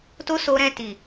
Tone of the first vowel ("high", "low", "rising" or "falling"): high